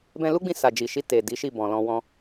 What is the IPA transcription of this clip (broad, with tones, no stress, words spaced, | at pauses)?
bɛ̃˧lu˦ɡ͡bĩ˧ sa˨d͡ʒi˨ʃi˧ te˨ di˨˦ʃi˦˨bɔ̃˨lɔ̃˧ wɔ̃˧